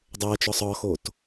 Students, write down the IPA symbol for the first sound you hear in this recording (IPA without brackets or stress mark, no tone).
dˤ